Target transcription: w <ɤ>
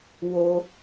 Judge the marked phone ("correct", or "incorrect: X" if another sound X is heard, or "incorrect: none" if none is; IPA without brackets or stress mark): incorrect: o